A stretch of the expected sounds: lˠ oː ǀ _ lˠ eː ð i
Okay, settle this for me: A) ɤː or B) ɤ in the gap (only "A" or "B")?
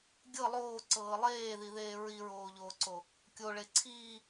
A